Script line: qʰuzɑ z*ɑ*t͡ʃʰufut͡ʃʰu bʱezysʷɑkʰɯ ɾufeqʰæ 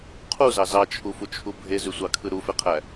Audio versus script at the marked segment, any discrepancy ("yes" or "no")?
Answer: no